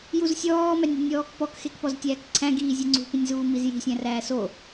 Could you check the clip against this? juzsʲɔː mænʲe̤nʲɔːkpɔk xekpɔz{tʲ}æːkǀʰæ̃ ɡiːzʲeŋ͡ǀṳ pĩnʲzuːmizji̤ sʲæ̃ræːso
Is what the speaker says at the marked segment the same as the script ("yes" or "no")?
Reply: yes